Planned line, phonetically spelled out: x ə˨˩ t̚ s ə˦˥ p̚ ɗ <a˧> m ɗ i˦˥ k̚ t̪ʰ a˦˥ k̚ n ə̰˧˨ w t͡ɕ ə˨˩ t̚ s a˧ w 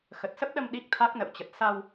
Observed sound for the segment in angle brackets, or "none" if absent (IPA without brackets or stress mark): ə˧